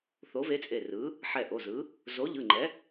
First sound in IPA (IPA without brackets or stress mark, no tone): θ